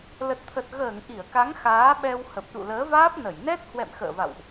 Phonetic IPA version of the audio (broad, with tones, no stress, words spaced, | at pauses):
lə˨˩t̚t̪ʰə˨˩t̚ ɣəː˧˩ŋ ʔi˧˩ə̯ka˨˦ŋ xaː˨˦ɓɛ˧w hə˨˩p̚ɗṵ˧˨ləː˨˦vaː˦˥p̚ nə˧˩jnɛ˦˥t̚ hwɛ̰˧˨mxə̰ː˧˨va̰˧˨wʔ